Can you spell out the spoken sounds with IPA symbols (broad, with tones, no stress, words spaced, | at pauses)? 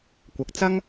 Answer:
kʷɐ˨k̚t͡sɐ˥ŋ